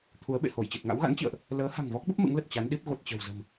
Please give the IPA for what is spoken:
t̪ʰu˨˦ə̯ɓḛ˧˨ho˧˩j t͡ɕi˨˩t̚ŋa̰˧˥wɣa̰˧˥nt͡ɕḭ˧˨ə̯ʔ | ləː˨˦ha̤˨˩ŋvɔ˦˥k̚ɓə˦˥p̚ mɨ̰˧˥ŋlə˨˩t̚ t͡ɕa˨˦nɗi˦˥p̚ ɣo˨˩t̚t͡ɕə̤˨˩wzə̤˨˩m

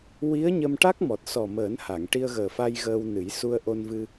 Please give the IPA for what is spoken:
wi˧˥ə̯ɲə˧mʈa˦˥k̚mɔ˨˩t̚ sɔ˨˩məː˨˩˦nha˨˩˨ŋ ʈi˧ə̯ɣəː˨˩fa˧j ɣəː˧wnɨ˨˩˦j su˧ə̯ʔo˧nvɨ˧

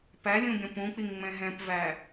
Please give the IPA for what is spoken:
pæ lʲũɡʲɔ̃pũk͡piŋ ŋ͡mɛ̃ɦɛ̃pvæ

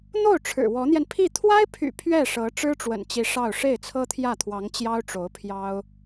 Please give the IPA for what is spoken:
n̪o˥˩ʊ̯ ʈ͡ʂʰɻ̩˨˩wɔ˧˥n̪jɛ˧n pʰi˥˩ t̪ʰwa˥ɪ̯pʰy̰˨˩ pʰɥɛ˥˩ʂɤ˧˥ ʈ͡ʂɻ̩˥ʈ͡ʂwə̰˨˩nt͡ɕi˧˥ ʂɑ˥˧ʊ̯ ʂe˥˩ɪ̯t͡sʰɤ˥t̪ʰjä˥˩t̪ʰwɑ˧˥ŋ t͡ɕjɑ˥ʊ̯ʈ͡ʂo˧˥ʊ̯pʰjɑ˥ʊ̯

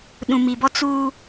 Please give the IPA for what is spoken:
ɗũ˨mi˨bɔ˦ t͡suː˦

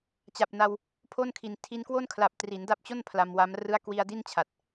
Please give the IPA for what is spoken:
t͡ɕa˨˩p̚na˧w | pʰo˥˩nkʰi˨˩n tʰi˧nkwo˥˩nkʰla˨˩p̚ tri˩˦nda˦˥p̚t͡ɕo˥˩n pʰla˧mwa˦˥m rɯ˦˥a̯kwi˧a̯ di˥˩nt͡ɕʰa˨˩t̚

